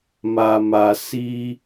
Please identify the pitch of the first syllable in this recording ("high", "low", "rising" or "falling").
low